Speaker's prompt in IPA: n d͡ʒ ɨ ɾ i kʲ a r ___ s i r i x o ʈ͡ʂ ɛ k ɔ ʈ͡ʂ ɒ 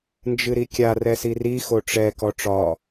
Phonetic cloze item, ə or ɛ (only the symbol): ɛ